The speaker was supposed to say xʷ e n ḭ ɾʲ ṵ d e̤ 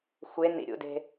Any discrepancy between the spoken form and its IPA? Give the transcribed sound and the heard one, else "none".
none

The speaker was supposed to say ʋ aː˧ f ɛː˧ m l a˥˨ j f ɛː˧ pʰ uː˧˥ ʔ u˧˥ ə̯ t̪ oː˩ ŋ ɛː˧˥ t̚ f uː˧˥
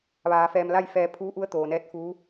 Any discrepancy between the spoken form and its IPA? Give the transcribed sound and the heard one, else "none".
ŋ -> n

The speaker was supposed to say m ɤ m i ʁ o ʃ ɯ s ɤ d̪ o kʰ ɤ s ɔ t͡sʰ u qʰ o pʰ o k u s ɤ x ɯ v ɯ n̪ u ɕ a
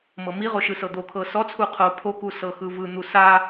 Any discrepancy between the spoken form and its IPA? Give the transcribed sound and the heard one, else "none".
ɕ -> s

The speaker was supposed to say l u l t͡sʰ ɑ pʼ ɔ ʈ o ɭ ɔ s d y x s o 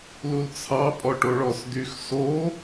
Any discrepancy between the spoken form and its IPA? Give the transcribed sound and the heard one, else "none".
none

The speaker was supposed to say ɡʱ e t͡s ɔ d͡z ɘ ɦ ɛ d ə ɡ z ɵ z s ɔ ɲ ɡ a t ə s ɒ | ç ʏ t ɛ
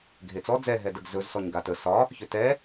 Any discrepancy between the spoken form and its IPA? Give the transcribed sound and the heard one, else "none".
ɘ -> ɛ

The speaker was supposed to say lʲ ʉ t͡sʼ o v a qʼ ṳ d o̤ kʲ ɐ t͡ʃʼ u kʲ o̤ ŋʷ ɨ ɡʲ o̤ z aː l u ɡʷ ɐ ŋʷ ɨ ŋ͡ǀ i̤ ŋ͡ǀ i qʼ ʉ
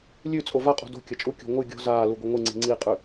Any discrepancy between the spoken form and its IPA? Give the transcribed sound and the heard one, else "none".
none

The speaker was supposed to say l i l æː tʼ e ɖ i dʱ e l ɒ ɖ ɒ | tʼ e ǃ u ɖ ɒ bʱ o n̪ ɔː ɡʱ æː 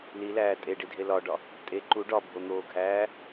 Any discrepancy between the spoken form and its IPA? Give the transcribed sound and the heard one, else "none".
ɔː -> oː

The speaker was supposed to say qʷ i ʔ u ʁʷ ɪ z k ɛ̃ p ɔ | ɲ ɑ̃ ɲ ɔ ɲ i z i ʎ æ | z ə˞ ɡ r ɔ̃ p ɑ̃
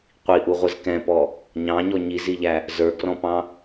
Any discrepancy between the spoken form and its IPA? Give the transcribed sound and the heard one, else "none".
none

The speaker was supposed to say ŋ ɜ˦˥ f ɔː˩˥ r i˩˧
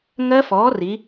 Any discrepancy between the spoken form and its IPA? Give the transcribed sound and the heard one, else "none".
none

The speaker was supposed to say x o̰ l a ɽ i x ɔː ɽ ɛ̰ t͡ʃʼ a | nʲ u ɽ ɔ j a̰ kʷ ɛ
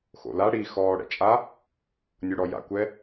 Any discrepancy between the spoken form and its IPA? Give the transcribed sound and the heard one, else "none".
none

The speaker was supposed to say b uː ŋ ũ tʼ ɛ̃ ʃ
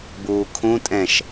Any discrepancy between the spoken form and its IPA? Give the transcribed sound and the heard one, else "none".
ŋ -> kʰ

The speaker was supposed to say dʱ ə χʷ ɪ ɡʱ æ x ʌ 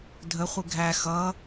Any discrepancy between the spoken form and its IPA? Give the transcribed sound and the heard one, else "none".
none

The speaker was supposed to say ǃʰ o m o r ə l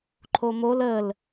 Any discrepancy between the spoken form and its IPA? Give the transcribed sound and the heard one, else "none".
r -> l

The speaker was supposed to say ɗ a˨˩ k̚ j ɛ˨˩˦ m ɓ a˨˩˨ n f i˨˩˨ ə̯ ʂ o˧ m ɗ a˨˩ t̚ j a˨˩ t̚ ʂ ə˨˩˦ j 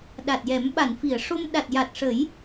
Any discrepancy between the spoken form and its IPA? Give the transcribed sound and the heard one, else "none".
k̚ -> t̚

